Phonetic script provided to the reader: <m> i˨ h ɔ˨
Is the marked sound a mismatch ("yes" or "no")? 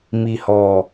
no